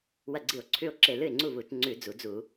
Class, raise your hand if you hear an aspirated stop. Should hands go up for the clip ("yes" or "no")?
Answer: yes